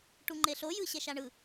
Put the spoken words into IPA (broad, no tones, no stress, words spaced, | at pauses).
ʈuŋ͡ǃeɬo jɯɕɛʃaɳɯ